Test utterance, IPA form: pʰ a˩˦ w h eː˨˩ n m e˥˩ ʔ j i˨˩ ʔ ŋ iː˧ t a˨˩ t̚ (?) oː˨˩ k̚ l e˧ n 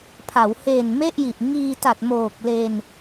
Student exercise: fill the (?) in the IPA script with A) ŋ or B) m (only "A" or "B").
B